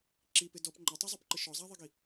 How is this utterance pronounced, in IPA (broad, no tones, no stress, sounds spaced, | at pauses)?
ǁ i p ɪ d ɔ p ŋ͡ǃ ɛ tˤ ɛ zˤ o p ǃ ɪ ʃ ɔ zˤ a ðˤ i ɡ i